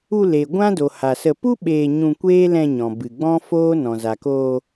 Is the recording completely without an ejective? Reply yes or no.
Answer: yes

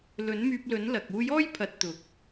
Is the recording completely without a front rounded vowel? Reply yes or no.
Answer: no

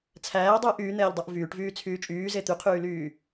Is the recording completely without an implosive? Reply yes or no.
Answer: yes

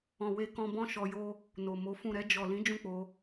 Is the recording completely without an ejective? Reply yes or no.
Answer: yes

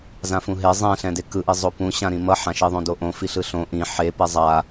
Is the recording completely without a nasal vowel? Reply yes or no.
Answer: no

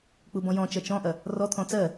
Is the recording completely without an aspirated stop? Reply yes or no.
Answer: no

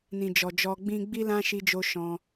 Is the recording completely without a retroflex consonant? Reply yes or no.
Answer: yes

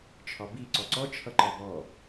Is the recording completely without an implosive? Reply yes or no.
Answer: yes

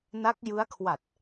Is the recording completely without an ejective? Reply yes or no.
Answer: yes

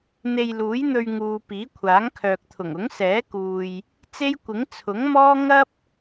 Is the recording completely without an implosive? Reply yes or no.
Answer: yes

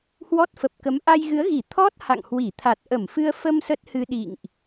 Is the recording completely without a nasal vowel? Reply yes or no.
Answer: yes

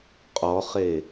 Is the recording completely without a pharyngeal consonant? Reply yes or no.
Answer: yes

